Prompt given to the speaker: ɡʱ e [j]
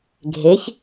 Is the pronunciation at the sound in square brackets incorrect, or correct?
incorrect